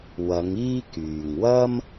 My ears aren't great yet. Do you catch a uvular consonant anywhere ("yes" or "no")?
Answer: no